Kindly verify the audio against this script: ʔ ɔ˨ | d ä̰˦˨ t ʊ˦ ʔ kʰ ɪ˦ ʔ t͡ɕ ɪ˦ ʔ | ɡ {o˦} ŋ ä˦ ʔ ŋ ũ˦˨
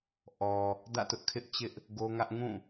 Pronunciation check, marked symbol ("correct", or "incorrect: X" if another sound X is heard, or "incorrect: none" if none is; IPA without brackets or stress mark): correct